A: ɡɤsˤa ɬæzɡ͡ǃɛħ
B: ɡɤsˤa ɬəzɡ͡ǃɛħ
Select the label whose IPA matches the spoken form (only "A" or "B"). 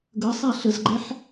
B